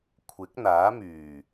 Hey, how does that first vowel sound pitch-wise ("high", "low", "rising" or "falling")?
rising